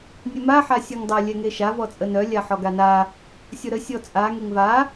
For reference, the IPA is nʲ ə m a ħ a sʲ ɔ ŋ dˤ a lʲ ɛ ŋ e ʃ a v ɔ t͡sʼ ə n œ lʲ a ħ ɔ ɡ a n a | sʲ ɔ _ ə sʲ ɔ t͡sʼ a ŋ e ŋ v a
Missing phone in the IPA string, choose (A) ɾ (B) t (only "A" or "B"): A